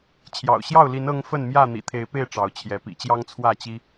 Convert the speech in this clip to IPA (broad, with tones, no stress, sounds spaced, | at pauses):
t͡ɕʰ j ɑ̰˨˩ ʊ̯ ɕ j ɑ˥˨ ʊ̯ l i˨˦ n ɤ˦ ŋ f ə˥˨ n m j ä˥˨ n̪ ḭ˨˩ t̪ʰ e˨˦ ɪ̯ p e˥˨ ɪ̯ ʈ͡ʂ ɑ˨˦ ʊ̯ t͡ɕʰ j ɛ˨˦ p ḭ˨˩ t͡ɕ j ɑ˦ ŋ t͡sʰ w ä˥˨ t͡ɕ i˦